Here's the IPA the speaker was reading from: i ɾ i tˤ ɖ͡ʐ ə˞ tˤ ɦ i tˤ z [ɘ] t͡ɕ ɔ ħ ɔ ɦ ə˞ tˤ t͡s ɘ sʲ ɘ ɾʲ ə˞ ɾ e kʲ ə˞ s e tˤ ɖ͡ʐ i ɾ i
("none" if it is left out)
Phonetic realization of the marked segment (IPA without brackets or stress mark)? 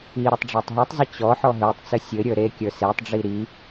e